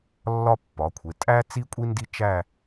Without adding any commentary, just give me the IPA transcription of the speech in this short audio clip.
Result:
lː ɒ˥ pː ɒ˩˧ kʷʰ e˩˧ tʼ æ˥ t͡s i˥ kʷʼ i˥ n d i˥ t͡ʃ æ˥˧

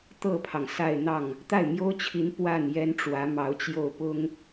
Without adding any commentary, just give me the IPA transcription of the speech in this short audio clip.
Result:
t̪ ɤ˥˩ pʰ ɑ˩ ŋ s a˥˧ ɪ̯ n̪ ɑ˥˩ ŋ | t̪ a˥˩ ɪ̯ m j o˥ ʊ̯ t͡ɕʰ i˧˥ n p w a˥˩ n j ɛ˥ n ʈ͡ʂ w ä˧˥ m ɑ˧˥ ʊ̯ t͡ɕ j o˥˩ ʊ̯ p ʊ˥ ŋ

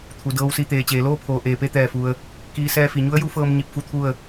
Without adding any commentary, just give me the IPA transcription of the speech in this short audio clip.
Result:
t̪ʰ u˩˧ d ɤː˧˥ w s i˧ t̪ eː˩ t͡ɕ eː˩ l oː˥˨ pʰ oː˩ ʔ eː˩ p e˧ t̪ ɛː˧˩ f u˩ ə̯ | k iː˧˥ s ɛː˧ f i˩ ɲ u˧˥ ə̯ j u˧˥ f ɤː˧ m ɲ i˧ p̚ f u˧˥ t̪ʰ u˥˨ ə̯

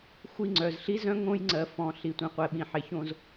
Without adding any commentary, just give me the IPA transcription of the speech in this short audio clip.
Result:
xʷ i˦˨ ŋ͡ǀ œ˨ z ɬ i˦ z œ̃˦ ŋ õ˦ j ŋ͡ǀ ɜ˨ f ɔ̃˨ ɬ i˨ tʷ ĩ˨ qʷ ɛ˨ ɓ ĩ˨ ħ e˨ ç õ˦ z

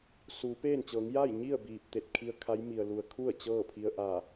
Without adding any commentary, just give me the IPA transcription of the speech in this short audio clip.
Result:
s uː˩˧ p eː˥˨ n t͡ɕ ɤː˩˧ ŋ j a˥˨ j ɲ i˥˨ ə̯ b iː˧˩ p̚ t̪ e˧˩ t̚ kʰ i˧ ə̯ kʰ a˧˥ j m i˩ ə̯ l u˩ ə̯ kʰ u˥˨ ə̯ t͡ɕ ɤː˥˨ pʰ i˧ ə̯ ʔ aː˧˩

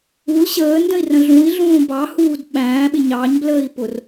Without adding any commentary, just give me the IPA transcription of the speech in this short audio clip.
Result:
u l ɕ əː n d ə̃ i̯ r ə̃ ɮ ũ i̯ ɮ ũː b ɑ h uː d ɓ æ̃ː ɓ ɪ ɲ ɑ ɲ b l əː i̯ p ʊ r

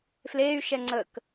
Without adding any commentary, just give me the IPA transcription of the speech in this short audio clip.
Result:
f l eː y̯ ʃ ɛ ŋ͡ǀ ə k

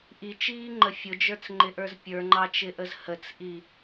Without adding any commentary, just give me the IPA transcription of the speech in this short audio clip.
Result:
ʔ i t͡ʃ iː ŋ͡ǃ ə fʲ ʊ d͡ʒ ə˞ t͡s ŋ͡ǃ ɪ ʔ ə˞ z pʲ ə˞ ŋ͡ǃ ɑ t͡ʃ ɪ ʔ ə z h ə t͡s ʔ i

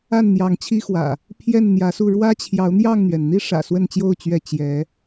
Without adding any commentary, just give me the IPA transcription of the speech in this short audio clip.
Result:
a˥˨ n n̪ j ɑ˨˦ ŋ t͡ɕʰ i˦ x w ä̰˨˩ | pʰ j ɛ˥˨ n n̪ j ä˨˦ s u˥˨ ɻ w ä˦ t͡ɕʰ j ɑ˨˦ ʊ̯ n̪ j ɑ˥˨ ŋ n̪ ɥ ɛ˩ n n̪ i˦ ʂ ä̰˨˩ s w ə˥˨ n t͡ɕ j o˥˨ ʊ̯ t͡ɕ ɥ ɛ˥˨ t͡ɕ j ɛ˨˦

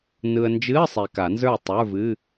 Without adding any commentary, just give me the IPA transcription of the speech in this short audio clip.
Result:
n ɯ˨ ə̯ n d͡ʒ ɨ˧˥˧ ə̯ sˤ e˨ k a˨˩˦ n z ə˞˥˩ tˤ ə˞˧˥˧ v ɨ˧˥˧

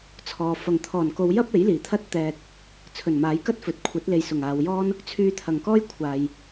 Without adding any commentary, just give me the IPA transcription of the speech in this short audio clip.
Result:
t͡sʰ ɔː˨ f ɐ˨˩ ŋ t̪ʰ ɔː˨˩ n k o˨˧ w j ɐ˥ p̚ e˨˥ j l iː˨˩ t̪ʰ ɐ˥ t̚ t̪ ɛː˧ t̚ | t͡sʰ ɵ˨˩ n m aː˨˥ j k ɐ˥ t̚ f ɵ˨ t̚ kʷʰ ɐ˨˥ t̚ l e˨ j s ʊ˨˩ ŋ aː˨ w j ɔː˥ n | t͡sʰ yː˧ t̪ʰ ɐ˨˩ ŋ k ɔː˥ j kʷʰ aː˨ j

